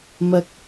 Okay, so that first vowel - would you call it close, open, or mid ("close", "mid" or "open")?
open